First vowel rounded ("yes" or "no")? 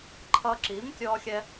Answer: no